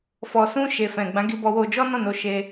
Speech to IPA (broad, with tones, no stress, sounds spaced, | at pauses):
f ɔ˨ s ũ˧ ʃ e˨ f ɛ̃˨ ɡ͡b ã˨˦ ɡ i˧ b ɔ˧ w o˧ d͡ʒ ɔ˦ n ɔ̃˦˨ n o˧ ʃ e˧